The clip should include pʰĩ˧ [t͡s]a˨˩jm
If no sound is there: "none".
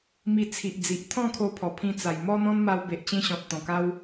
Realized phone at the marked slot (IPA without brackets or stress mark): t͡s